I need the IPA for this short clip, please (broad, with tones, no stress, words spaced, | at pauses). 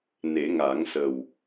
ne˨˩˦ŋa˨˩˦ŋsə˨˩w